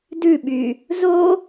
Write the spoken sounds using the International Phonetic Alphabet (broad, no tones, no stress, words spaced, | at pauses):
dʉɓy | zo